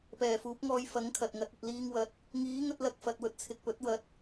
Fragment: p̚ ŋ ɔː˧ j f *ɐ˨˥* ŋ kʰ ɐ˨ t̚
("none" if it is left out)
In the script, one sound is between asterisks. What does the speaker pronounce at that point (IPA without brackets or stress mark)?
ɐ˨˥